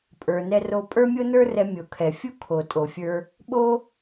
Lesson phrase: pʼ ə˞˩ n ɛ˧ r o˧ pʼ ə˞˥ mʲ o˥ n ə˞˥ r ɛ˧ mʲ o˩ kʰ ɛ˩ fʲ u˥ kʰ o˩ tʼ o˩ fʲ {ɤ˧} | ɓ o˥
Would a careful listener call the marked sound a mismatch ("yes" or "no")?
yes